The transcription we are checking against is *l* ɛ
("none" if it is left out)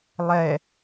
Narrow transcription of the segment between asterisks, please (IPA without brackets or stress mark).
lˠ